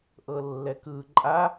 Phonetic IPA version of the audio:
ʔɤlːɛkɯ ǃʼa

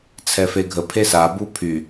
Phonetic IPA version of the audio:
t͡sʰɛfeɡʱə pʰesa bupʰy

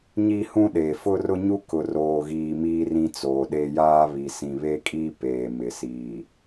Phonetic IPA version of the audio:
ɲi˦hũ˦ɗeː˨ fʊ˦rʊ˦ɲu˦kʊ˨ roː˨ɣiː˨ miː˦rĩ˦t͡soː˨ɗe˦ jaː˦ βi˨sĩ˨βe˦kʼiː˦ peː˨mɪ˨siː˨

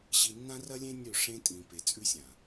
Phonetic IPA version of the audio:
ɕi˨nːã˦rɐ˦lʲẽ˦ nʲɵ˦˨ʂẽ˦ tʼĩ˨ pe˨t͡sʼʉ˦sʲã˨

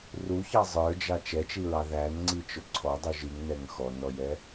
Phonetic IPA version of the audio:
ruçɑ zˤə˞d͡ʒɑ t͡ʃɛt͡ʃiɹɑ ðænŋ͡ǀit͡ʃʊ ǀʰɔdˤuʒ iŋnɛŋ xɔnɔjɛ

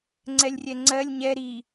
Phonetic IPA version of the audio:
ŋ͡ǀɛlʲrʲɛŋ͡ǀɜlʲ ɲɛ ɾi

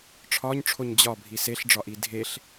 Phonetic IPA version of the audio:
ʈ͡ʂʰɒɲʈ͡ʂʰoɲ d͡ʑɒbʱi seɬɖ͡ʐɒʔi dʱeɬ

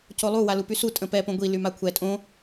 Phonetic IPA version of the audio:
colˠu walupysu tʼə̃pɛ põɡʷi lymakʷʰɛ tʼõ

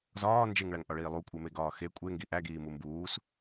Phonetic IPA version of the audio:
zɒː nd͡ʒeŋɭæŋʔɒɭiː lˠukʷʼeme ɡɒːxe kʷʼeŋɡi ʔæɡiː mumbuːs

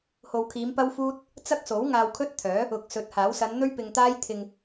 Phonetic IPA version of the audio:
ho˨wkʰiː˨˧mpɐ˥wfuː˥t̚ | t͡sɐ˥k̚so˨˥w ŋaː˧wkʰɵ˥t̚t̪ʰœː˨˥ | ʊ˨k̚sɵ˨˥t̚haː˨˥w sɐ˨˧nn̪ɵ˥ɥpɪ˨ŋt̪aː˥j t̪ʰɪ˨ŋ

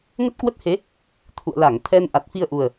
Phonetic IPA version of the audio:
ŋə˦˥t̚kwə˦˥t̚he˨˦ | t̪ʰṵ˧˨ə̯la˧˩ŋ t̪ʰɛ˧nʔa˨˩t̚fi˧ə̯ʔu˨˩ə̯

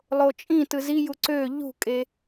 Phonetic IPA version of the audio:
lˠot͡ʃʼĩ tɯziju ǀø ʎṳkʼe

